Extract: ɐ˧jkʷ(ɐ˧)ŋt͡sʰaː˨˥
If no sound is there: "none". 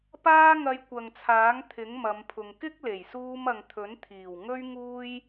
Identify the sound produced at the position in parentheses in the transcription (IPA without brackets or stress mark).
ɐ˨